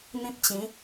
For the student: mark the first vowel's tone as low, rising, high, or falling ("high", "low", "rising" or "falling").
high